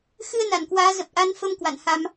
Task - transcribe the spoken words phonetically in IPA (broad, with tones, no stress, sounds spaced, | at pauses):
x ɨ˧ ə̯ n a˧˩ n k w aː˨˦ z ə˨˩ p̚ ʔ a˧ n f ə˧ m k w a̰˧˨ n h a˧ m